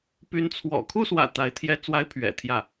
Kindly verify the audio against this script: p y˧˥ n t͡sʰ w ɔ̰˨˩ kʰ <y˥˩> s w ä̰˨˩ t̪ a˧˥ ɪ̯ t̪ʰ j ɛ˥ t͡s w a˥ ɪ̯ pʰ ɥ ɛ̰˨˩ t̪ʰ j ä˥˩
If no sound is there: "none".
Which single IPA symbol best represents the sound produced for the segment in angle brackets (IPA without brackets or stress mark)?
u˥˩